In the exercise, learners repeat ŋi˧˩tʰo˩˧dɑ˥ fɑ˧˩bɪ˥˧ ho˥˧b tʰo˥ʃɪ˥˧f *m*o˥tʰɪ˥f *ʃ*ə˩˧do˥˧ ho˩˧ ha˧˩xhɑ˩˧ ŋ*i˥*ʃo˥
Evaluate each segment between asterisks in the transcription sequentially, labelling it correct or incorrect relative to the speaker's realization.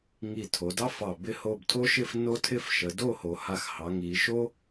incorrect, correct, incorrect

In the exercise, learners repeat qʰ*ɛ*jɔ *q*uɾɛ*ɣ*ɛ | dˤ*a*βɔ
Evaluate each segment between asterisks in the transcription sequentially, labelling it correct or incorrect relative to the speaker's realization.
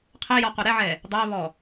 correct, correct, incorrect, incorrect

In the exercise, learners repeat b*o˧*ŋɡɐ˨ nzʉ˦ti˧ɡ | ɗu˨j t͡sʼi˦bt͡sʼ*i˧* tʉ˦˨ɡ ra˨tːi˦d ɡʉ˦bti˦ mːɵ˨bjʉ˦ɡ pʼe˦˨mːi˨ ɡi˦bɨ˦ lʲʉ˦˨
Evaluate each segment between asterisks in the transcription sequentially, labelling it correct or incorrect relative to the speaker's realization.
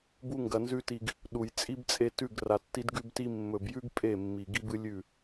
incorrect, incorrect

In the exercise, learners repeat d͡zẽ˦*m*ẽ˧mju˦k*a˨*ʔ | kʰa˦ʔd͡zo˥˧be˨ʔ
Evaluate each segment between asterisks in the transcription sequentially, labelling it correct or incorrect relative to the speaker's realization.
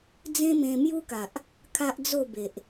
correct, correct

